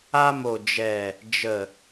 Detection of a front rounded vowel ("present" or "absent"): absent